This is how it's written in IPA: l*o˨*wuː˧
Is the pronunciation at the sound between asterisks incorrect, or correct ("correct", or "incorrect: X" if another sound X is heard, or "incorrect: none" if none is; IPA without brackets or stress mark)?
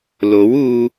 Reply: incorrect: o˨˥